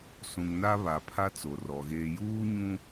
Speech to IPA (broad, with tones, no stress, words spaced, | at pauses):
sũ˨ŋna˦ βa˨pʰa˦ t͡so˨rɔ˨ ɣeː˨juː˦ɲũ˦